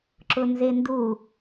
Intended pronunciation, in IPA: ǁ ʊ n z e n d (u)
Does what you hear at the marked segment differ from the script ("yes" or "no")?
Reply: no